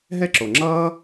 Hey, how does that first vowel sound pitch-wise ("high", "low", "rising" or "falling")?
high